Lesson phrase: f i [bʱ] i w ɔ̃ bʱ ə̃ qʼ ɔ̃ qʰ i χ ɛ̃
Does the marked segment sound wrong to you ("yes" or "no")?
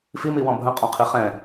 yes